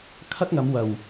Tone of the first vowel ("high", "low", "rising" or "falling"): high